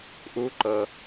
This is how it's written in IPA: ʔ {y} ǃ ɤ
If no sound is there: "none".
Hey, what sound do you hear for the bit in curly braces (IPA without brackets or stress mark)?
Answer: u